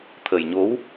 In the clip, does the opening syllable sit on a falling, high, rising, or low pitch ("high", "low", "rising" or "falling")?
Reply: low